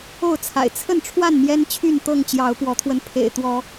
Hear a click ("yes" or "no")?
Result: no